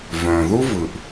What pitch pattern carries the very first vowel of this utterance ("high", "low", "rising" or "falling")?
low